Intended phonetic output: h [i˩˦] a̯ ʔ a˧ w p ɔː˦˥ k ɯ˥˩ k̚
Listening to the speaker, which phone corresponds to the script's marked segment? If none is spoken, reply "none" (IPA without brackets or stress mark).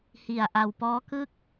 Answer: i˧